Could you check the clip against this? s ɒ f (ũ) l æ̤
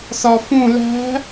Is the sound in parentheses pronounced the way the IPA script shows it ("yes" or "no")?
yes